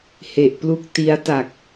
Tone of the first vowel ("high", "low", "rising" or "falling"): low